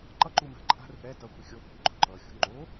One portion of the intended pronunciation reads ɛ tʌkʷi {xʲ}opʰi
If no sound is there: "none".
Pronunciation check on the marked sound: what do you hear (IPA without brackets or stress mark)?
xʲ